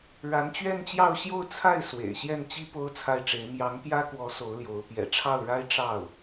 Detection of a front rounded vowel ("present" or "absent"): absent